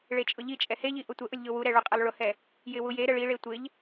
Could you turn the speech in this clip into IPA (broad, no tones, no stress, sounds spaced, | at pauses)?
ɭ e t͡ʃʼ ʊ ʎ i t͡ʃʼ ɛ h e ʎ i ʔ ʊ tʷ ə ʔ ʊ lʲ ʎ ʊ w u ɾ ɛ ɭ u qʼ e lˠ ɭ ʊ h ɛ | j ɪ w u j e ɾ ə ɭ i ɭ e tʷ ɪ ʎ